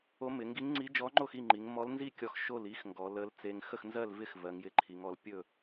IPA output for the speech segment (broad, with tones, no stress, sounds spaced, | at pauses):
o˧˥ m ɪ˩˧ ŋ ɡ i˧˥ ŋ ŋ͡ǀ i˧˥ d͡ʒ ɔ˧˥ ŋ͡ǃ o˥˨ x i˥˨ ŋ͡ǃ i˩˧ ŋ m ɔ˧˥ l n z i˥˨ kʲ ɔ˧ x ʃ o˥˨ l i˧˥ x ŋ ɡ ɔ˩˧ l ə˧˥ l t͡s e˧ ŋ x ə˥˨ x n z ɜ˥˨ l v ɪ˥˨ x v ɜ˩˧ ŋ j ɪ˧˥ ǃʰ i˩˧ ŋ ɔ˩˧ l pʲ ɵ˥˨